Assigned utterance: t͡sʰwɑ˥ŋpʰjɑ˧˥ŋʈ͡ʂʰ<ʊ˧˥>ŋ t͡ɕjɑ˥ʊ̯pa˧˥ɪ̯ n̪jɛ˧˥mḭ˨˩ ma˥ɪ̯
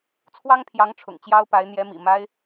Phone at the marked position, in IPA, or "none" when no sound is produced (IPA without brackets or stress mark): ʊ̰˨˩